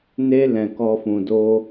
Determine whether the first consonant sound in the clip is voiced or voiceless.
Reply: voiced